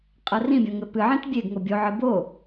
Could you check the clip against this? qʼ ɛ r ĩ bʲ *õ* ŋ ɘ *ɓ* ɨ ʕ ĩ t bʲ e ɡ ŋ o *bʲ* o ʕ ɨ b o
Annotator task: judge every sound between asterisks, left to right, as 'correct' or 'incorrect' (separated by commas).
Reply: correct, incorrect, correct